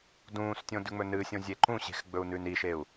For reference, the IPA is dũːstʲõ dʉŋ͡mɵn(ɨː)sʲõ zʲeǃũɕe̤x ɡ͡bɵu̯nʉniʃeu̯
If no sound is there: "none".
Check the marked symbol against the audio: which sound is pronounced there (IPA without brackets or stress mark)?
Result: ɨː